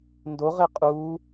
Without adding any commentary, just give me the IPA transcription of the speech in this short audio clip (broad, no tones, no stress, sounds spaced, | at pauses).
n d o ʁ e qʼ uː